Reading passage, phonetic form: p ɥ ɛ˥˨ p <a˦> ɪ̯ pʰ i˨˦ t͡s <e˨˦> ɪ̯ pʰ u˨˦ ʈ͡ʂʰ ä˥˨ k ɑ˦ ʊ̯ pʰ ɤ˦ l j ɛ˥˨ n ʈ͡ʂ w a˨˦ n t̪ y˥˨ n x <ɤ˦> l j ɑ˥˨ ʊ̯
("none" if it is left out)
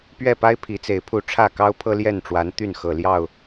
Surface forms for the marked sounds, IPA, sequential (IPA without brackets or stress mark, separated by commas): a˦, e˨˦, ɤ˨˩